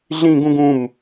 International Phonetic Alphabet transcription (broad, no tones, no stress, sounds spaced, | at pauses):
ɮ ĩ ɡ ũ ɡ ũ m